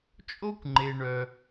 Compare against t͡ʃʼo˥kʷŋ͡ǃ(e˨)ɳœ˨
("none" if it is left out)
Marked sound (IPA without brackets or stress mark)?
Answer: e˨